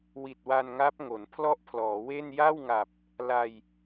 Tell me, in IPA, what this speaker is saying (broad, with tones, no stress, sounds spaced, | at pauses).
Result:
w i˨˩ t̚ w a˧ n ŋ a˦˥ p̚ ŋ o˩˦ n pʰ l ɔ˥˩ ʔ pʰ l ɔː˩˦ w e˥˩ n j a˥˩ w ŋ a˨˩ p̚ | l a˧ j